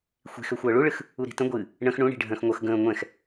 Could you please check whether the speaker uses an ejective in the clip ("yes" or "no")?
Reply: no